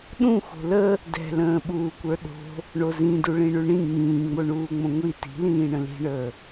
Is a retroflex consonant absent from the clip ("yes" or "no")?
no